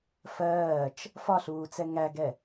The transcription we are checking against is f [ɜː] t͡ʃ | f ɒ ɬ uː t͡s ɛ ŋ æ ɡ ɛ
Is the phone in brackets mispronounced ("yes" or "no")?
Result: no